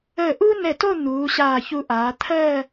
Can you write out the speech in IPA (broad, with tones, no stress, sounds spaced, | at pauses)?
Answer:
əː˧˩ ʔ u˥ n ɛ˧˩ t o˥˧ n̪ uː˩˧ ɕ aː˧˩ ç u˧ ʔ aː˩˧ t̪ʰ ɜ˥˧